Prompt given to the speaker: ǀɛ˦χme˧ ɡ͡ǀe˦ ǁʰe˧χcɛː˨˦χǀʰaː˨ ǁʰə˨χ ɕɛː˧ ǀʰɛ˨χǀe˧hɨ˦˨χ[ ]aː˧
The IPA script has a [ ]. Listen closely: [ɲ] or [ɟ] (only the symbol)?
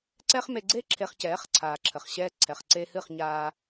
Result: ɲ